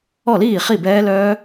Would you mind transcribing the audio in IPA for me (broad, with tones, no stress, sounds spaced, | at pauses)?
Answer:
ɔ˥˩ l iː˥˩ χ i˥˩ b ɛː˦˥ l œː˦˥